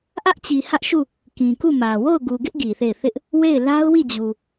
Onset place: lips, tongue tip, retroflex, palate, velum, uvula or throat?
throat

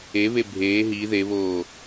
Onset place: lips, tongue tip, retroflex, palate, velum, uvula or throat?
lips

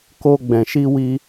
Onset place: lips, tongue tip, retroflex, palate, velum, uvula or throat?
velum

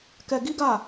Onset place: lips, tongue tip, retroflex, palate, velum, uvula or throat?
velum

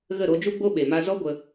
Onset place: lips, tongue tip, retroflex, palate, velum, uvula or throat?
velum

